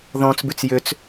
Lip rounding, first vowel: rounded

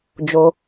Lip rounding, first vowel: rounded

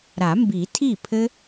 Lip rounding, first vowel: unrounded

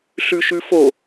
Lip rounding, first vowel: rounded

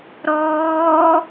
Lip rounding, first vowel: rounded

